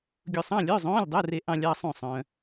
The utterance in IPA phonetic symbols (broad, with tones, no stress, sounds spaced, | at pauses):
ɡʲ u˧ sˤ ɑ̃˧˥˧ lʲ œ˧˥˧ zˤ õː˧˥˧ lʲ dˤ œ˧˥˧ r e˧ ʔ ɑ̃˧ lʲ ɑ˧ sˤ ũ˥˨ sˤ œ̃ː˧